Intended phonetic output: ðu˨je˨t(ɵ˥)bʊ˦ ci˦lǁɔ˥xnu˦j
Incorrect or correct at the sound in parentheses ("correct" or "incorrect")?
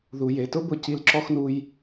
incorrect